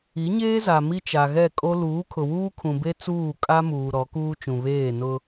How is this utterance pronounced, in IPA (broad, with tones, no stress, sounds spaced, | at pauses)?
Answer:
i˨˦ ɲ eː˦ z a˨ m i˦ t͡ʃ a˨ ɣ ɛ˦˨ kʼ o˦ l uː˨˦ kʰ ʊ˨ w uː˦ kʰ ũ˨ b e˦ t͡s uː˦˨ kʼ a˦ m uː˨ ɾ ɔ˨˦ k uː˦ t͡ʃ ũ˨ β eː˦˨ n ʊ˦